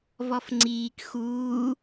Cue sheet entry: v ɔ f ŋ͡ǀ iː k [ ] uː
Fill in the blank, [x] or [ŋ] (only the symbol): x